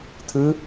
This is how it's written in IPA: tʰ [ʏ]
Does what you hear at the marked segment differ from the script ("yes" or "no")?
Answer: yes